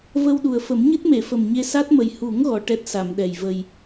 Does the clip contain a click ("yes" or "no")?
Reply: no